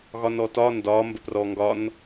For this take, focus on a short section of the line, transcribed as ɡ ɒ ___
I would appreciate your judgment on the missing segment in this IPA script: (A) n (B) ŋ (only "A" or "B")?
A